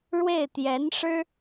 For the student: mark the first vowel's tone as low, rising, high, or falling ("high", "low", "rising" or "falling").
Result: falling